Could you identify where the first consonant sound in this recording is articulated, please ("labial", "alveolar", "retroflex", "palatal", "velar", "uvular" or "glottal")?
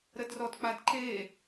alveolar